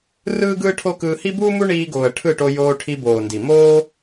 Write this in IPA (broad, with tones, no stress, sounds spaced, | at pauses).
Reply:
r ɯː˦ ɡ ɯː˦ ʈʰ o˦ k ɯː˧ h i˦ b uː˦ m u˦ ɳ iː˧ ɡ oː˨ ə̯ ʈʰ ɯ˦˨ ʈ o˧ j oː˧ ʈʰ i˧ b oː˨ n d i˨ m oː˦